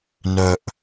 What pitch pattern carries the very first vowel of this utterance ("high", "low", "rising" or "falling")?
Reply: low